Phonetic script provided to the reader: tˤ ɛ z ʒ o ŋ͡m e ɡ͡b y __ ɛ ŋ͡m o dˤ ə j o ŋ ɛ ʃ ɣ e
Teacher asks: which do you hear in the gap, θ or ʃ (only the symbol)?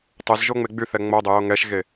θ